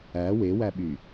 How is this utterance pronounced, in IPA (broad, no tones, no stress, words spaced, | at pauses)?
æ wewæɓy